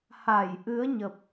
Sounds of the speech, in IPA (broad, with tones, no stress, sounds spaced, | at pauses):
h a˧˩ j ʔ ɨ˨˦ ə̯ ɲ ə˨˩ p̚